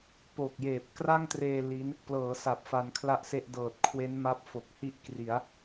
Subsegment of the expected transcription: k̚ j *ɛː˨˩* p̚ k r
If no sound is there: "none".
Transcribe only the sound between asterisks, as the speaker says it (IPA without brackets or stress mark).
eː˨˩